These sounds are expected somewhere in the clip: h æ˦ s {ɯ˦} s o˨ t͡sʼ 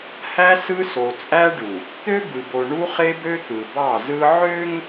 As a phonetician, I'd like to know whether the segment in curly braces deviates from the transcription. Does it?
no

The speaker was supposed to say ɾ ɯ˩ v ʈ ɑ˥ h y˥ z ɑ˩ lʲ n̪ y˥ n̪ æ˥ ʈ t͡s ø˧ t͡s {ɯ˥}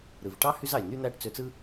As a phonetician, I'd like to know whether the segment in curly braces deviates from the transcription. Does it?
no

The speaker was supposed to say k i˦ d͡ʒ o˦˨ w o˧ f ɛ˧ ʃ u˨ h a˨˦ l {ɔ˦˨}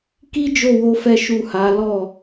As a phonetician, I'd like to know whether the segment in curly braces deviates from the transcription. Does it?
no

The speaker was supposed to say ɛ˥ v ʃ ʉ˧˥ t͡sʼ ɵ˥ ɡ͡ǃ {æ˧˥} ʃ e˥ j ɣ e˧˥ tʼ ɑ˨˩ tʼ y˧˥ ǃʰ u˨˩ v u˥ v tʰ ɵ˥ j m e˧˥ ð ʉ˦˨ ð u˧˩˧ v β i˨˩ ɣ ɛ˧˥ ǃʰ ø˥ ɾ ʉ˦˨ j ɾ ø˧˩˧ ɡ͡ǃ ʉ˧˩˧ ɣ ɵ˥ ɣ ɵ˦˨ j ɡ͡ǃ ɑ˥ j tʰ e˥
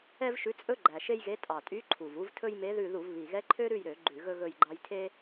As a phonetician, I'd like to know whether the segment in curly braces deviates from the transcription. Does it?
yes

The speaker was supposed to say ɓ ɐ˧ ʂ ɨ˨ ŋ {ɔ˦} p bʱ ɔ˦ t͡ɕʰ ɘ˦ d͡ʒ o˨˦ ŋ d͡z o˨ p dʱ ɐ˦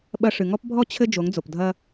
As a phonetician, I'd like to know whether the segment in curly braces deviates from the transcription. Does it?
no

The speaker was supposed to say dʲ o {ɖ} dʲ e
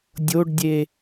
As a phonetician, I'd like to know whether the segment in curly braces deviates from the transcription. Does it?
no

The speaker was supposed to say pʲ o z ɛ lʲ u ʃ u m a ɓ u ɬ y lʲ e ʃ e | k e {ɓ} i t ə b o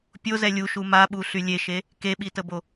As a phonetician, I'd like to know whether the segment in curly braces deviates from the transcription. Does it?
no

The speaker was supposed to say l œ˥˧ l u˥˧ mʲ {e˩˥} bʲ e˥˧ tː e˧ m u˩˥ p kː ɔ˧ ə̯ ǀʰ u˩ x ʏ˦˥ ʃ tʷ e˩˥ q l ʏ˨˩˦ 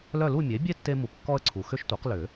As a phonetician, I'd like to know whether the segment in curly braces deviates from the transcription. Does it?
no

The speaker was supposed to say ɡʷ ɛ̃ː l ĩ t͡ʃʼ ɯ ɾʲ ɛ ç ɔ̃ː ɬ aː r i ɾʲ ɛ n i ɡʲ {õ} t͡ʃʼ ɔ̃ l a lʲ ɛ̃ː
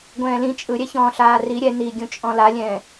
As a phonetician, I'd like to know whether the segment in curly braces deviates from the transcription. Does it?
yes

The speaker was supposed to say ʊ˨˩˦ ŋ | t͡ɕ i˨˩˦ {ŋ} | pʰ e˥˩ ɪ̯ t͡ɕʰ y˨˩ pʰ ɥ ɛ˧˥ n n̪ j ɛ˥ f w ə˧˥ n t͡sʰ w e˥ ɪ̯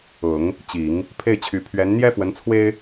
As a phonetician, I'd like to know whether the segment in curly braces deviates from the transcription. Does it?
no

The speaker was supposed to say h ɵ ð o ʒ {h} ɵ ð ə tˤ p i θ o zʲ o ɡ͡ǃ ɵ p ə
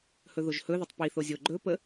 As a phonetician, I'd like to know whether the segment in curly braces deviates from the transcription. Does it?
no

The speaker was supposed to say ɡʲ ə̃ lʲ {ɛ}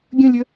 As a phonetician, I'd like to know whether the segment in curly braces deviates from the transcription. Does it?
yes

